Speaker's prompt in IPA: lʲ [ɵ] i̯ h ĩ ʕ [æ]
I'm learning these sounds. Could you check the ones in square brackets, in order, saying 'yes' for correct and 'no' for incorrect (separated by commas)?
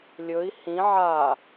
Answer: yes, no